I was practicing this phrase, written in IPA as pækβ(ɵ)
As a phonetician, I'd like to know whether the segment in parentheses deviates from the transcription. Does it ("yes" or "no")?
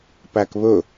no